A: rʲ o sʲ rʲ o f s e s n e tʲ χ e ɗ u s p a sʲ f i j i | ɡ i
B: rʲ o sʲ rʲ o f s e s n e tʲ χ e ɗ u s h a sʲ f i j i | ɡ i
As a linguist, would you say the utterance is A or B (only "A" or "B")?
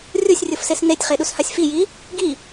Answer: B